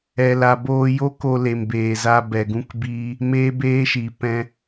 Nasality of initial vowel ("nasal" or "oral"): oral